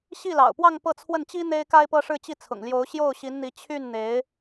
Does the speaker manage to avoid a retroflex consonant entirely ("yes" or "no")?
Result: no